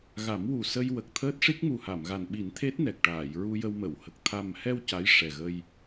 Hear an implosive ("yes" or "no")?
yes